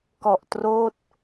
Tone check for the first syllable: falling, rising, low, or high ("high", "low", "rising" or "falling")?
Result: low